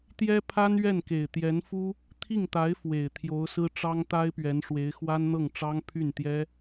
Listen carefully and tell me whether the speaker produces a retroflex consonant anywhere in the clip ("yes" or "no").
yes